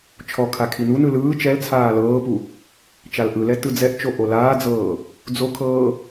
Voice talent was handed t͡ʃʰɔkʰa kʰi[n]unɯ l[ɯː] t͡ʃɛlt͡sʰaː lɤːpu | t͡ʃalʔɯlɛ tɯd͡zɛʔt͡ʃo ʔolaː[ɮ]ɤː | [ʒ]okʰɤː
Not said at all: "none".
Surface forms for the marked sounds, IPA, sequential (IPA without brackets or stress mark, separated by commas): n, ɯː, d͡z, d͡z